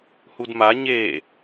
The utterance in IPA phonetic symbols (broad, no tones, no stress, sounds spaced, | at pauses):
h u d m a ɲ e